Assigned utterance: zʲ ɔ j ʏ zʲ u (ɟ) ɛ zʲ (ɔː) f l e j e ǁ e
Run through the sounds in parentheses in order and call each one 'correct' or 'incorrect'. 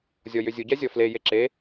correct, incorrect: ɔ

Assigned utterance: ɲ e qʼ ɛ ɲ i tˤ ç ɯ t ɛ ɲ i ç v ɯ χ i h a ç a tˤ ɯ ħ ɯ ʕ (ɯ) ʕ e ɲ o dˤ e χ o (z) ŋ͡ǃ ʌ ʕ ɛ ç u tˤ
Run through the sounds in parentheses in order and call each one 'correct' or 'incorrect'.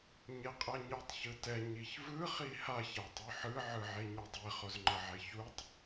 correct, correct

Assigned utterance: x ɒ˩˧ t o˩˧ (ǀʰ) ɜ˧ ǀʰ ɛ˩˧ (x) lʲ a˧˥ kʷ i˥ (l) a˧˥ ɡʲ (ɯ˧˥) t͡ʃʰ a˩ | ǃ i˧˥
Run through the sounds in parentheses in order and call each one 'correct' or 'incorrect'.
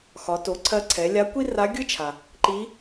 correct, incorrect: none, incorrect: r, incorrect: ɯ˥

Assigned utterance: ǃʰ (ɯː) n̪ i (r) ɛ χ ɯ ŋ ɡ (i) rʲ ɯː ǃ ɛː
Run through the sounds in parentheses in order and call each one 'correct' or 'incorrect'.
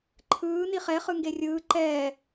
correct, incorrect: χ, incorrect: e

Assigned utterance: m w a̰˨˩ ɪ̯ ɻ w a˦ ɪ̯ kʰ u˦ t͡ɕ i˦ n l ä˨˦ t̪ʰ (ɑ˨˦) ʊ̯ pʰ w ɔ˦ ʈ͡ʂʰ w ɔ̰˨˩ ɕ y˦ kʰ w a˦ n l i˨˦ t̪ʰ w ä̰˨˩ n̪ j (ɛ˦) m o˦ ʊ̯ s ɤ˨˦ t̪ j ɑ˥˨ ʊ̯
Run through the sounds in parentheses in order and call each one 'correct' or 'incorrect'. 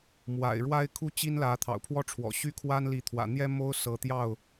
incorrect: ɑ̰˨˩, correct

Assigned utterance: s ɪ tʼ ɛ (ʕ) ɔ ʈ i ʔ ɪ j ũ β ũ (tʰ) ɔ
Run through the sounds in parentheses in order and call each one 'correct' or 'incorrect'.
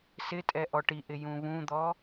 incorrect: ʔ, incorrect: d̪

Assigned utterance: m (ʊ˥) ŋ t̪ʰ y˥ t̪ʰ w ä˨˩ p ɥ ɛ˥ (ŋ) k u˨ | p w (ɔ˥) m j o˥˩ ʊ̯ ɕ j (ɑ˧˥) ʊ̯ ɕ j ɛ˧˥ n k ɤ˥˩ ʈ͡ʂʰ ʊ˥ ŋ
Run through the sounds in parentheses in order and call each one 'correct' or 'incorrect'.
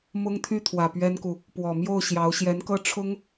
correct, incorrect: n, incorrect: ɔ˨˩, correct

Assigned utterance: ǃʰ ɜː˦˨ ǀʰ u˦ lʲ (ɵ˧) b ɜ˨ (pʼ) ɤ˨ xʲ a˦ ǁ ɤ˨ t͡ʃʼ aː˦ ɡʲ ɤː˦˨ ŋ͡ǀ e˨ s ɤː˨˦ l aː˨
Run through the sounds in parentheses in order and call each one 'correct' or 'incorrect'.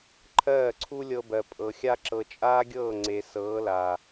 incorrect: ɤ˧, correct

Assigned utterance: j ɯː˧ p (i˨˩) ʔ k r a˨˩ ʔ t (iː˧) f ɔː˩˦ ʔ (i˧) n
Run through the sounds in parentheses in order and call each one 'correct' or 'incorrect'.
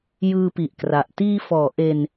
correct, correct, incorrect: e˧

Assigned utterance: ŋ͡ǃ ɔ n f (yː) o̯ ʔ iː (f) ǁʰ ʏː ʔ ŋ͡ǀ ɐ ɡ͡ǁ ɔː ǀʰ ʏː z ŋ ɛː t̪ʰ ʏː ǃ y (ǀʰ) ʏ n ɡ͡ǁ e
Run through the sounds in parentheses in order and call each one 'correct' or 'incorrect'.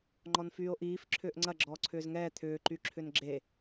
correct, correct, incorrect: ǁʰ

